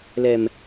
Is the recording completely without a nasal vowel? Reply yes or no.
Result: yes